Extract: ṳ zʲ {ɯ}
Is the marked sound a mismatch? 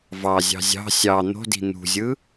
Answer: no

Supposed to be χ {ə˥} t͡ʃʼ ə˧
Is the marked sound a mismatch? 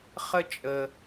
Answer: no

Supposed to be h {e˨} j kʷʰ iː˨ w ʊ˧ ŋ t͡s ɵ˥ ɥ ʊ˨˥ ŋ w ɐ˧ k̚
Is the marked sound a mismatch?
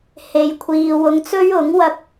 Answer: no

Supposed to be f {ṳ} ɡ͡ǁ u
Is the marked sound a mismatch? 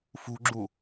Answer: no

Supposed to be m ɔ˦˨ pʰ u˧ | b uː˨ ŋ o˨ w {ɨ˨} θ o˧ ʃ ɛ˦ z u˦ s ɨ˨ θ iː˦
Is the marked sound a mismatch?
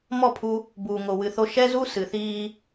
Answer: no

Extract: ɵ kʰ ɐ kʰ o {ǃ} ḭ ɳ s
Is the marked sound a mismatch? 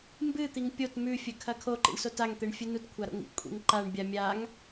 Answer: no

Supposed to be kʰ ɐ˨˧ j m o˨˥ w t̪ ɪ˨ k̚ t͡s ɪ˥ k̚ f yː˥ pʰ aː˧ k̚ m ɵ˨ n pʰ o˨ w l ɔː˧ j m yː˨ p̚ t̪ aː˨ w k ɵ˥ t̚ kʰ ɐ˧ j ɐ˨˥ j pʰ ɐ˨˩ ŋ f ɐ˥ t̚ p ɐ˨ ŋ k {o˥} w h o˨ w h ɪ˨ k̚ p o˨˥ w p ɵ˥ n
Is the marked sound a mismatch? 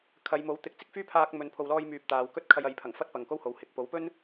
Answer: no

